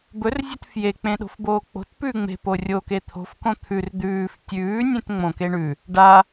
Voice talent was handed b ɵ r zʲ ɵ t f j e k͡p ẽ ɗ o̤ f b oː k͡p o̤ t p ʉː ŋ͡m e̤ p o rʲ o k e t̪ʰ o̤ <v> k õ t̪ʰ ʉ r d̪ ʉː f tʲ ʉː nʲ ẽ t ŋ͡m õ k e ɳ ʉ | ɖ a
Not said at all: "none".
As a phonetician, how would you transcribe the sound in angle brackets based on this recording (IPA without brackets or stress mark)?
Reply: f